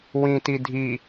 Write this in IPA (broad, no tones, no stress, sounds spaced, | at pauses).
w ĩ t i dʱ i